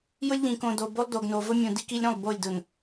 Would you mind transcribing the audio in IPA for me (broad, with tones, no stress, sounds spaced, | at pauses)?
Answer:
j ʊ˦ lʲ ʎ ĩ˨ k õ˨ d o˨ b o˦ lˠ d o˨ ɡ n o˨ v ʊ˦ mʲ ũ˨ d i˦ k i˦ lʲ ɾ ũ˦˨ lˠ b o˦˨ lʲ d ʊ˨ n